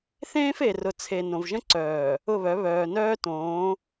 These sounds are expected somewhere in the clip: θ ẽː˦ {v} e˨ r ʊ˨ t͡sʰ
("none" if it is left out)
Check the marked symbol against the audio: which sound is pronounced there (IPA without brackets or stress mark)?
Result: f